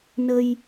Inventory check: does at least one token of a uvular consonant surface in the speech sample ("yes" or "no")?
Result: no